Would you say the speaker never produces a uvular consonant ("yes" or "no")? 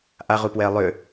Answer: no